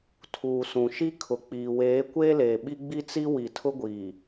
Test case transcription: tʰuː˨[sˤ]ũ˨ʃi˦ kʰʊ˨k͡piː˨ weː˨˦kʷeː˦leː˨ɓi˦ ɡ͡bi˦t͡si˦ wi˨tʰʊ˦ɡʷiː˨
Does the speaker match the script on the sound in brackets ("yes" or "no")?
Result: no